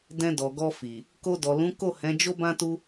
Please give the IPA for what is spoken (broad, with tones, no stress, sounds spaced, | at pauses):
d ɛ̃˧ d ɔ˨ ɡ ɔ˧ f i˨ | k o˧ d ɔ˨ l ũ˨˦ k o˦˨ h ɛ̃˨˦ d͡ʒ o˦ b ã˦ t u˦